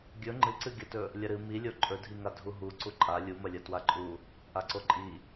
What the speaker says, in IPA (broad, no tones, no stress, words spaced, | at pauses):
ɡʲɵ ŋ͡ǃɨǀɨɡʲɐtɵ | lʲɐɾɨ milʲo ǃʼɵdʱiŋa dʱuɦu ǀuǃʼa lʲumɐlʲɐ twaǃʼu | ʔaǀoǃʼi